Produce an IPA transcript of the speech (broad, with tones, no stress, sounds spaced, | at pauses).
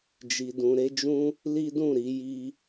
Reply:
d͡ʒ i˧ d ũ˧ ɾ e˦ d͡ʒ ũ˦ | l i˦ d ũ˦˨ ɾ i˧ j i˧